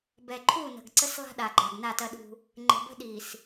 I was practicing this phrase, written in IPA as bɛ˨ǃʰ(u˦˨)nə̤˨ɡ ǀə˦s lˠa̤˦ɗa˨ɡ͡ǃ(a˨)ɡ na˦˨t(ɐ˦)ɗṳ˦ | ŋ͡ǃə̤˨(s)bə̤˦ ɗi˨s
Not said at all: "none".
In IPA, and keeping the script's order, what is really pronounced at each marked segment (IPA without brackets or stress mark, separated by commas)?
u˦˨, a˨, ɐ˦, none